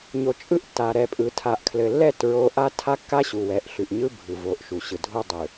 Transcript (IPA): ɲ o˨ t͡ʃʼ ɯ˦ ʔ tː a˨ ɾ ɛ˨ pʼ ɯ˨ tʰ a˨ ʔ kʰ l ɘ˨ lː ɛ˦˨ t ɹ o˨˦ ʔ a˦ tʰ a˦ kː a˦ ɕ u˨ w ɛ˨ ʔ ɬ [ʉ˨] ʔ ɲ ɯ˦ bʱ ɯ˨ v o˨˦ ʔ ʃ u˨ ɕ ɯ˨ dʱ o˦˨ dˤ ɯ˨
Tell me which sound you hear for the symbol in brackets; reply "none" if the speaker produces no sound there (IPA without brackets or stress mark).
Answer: ʉ˨